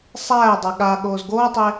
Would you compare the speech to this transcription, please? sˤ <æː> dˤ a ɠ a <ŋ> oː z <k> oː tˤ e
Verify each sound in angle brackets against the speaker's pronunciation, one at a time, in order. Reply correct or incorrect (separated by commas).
correct, incorrect, incorrect